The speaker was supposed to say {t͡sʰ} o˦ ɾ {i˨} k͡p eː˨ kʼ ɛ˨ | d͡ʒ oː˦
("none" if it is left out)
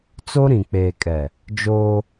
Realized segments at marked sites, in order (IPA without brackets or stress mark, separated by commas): t͡s, ĩ˨